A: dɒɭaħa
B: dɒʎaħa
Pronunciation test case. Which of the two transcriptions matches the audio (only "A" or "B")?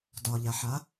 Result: B